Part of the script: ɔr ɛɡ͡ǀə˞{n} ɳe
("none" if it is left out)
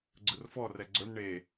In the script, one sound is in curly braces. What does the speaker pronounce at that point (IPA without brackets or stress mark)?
n